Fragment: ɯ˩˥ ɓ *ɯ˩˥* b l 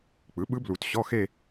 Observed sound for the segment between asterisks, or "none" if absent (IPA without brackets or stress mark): ɯ˧˥